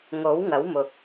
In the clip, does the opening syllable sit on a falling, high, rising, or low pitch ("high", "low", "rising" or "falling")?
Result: rising